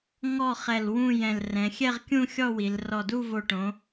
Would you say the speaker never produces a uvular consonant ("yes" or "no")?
no